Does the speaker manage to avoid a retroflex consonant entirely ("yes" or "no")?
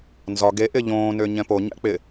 yes